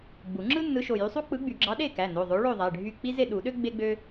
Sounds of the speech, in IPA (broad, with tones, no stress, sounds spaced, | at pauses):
ɡ͡b u˨˩˦ ŋ͡ǁ ɯ˥ nː ɯ˨˥ ʃ o˩˧˩ j y˨˥ sˤ u˥ k͡p ɯ˨˥ ɡ͡b y˨˩˦ ɡ͡ǁ ɑ˨˥ ɗ e˥˨ k æ˩˧˩ n o˩˧˩ ðˤ o˨˥ ɭ o˥˨ ðˤ æ˩˧˩ ɖʱ y˥˨ k͡p i˥ z e˥˨ ɗ u˨˩˦ ɗ ø˥ ɡ͡b e˥ ɡ͡b ø˥